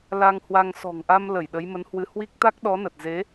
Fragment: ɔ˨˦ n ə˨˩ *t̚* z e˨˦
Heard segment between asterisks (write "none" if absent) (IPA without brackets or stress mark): t̚